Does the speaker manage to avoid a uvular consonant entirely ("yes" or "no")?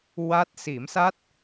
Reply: yes